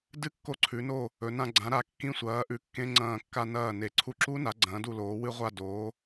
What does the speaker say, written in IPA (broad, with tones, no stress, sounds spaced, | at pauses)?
d ɨ˦˥ kː o˧ ǀʰ ʉ˩˧ n o˧˩ | ɵ˩˧ n ã˧ ɡ͡ǀ ã˩˧ ɾ a˩˧ kː ĩ˧˩ sʷ ɐː˩˧ ʔ ʉ˩˧ kː ẽ˧ ŋ͡ǀ ɐ̃ː˧˩ kː a˧ n ɐː˧˩ n e˩˧ ǀʰ u˧ ǁ u˦˥ n a˩˧ ɡ͡ǀ ɐ̃ː˩˧ d u˧˩ l oː˩˧ w ɨ˧ ʁʷ a˧˩ d oː˩˧